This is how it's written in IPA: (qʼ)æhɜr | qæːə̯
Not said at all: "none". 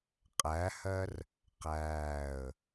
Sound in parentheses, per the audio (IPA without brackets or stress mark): qʼ